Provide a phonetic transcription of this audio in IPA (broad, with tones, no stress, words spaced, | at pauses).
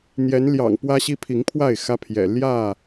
n̪jɛ˨˦nljɑ̰˨˩ŋ pwä˦ɕi˦pʰi˨˦ŋpʰwa˥˨ɪ̯ xä˦pʰjɛ̰˨˩ ljä˥˨